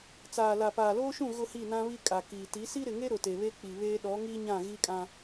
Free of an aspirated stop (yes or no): yes